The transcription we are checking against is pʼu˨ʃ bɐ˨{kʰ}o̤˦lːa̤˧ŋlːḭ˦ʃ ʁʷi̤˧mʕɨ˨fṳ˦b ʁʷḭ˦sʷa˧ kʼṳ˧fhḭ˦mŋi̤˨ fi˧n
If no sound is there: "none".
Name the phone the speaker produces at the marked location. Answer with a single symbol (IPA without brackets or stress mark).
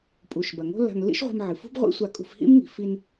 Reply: ŋ